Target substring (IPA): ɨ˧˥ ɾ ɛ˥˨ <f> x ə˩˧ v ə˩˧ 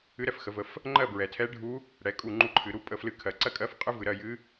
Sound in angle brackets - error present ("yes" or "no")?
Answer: no